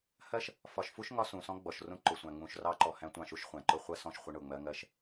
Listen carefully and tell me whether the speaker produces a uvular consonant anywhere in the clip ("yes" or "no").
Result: yes